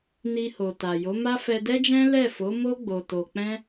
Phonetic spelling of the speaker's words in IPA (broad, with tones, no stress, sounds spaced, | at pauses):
n i˧ h o˨ t a˨ j o˨˦ m a˦ f ɛ˧ d ɛ˦ d͡ʒ ɛ̃˦ l ɛ˦˨ f o˨˦ m o˦ ɡ͡b o˧ t o˧ k͡p ɛ̃˦